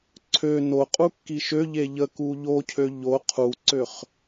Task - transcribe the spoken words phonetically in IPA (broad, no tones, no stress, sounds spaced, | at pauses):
ǀʰ ø n o qʼ u kː i ʃ ø ʎ e ʎ ə k u ʎ o cʰ ø ʎ o qʰ u ǀ ø χ